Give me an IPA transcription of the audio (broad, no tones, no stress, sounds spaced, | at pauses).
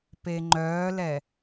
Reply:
p e ŋ͡ǃ œː l ɛ